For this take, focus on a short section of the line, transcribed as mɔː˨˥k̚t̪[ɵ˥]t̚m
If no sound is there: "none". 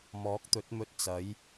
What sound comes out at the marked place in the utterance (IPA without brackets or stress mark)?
ɵ˨˥